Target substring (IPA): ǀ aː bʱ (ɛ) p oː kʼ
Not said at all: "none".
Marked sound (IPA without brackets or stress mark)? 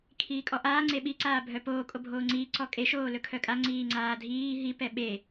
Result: œ